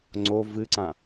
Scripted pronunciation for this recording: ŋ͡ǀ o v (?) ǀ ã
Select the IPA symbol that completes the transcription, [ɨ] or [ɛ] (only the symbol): ɨ